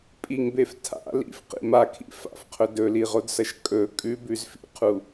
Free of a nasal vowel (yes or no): yes